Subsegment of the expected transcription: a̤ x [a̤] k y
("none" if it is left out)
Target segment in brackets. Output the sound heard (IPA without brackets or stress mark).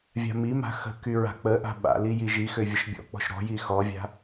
ə̤